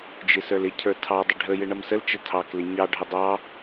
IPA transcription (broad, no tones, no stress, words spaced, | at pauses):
d͡ʒɪsə˞lɪcʰə˞ tʰɑdˤə ɖʱəjɪ ɳʌmsəlt͡ʃə tʰɑklɪ ɲɑɖʱə dˤɑ